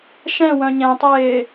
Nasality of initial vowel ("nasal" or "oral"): nasal